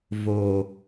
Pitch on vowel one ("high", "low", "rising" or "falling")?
low